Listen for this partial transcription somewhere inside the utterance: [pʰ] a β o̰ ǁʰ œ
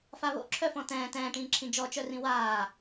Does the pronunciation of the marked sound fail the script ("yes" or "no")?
yes